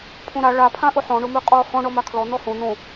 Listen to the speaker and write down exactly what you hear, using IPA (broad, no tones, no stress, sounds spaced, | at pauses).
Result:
pʰ õ ɾ a ɭ a pʰ ã ʔ ʊ ħ ɔ̃ ɳ ʊ m ʉ qʼ ɔ h ɔ̃ ɳ ɔ m a kʰ l ɔ n̪ ɔ h õ n̪ õ